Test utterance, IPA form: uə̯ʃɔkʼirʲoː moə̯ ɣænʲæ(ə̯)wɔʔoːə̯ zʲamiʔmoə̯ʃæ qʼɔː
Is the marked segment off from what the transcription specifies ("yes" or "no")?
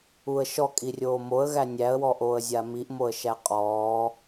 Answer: no